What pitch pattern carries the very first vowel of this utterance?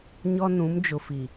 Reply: high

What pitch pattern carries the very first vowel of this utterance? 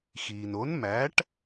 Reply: low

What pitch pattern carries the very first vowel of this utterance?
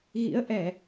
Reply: rising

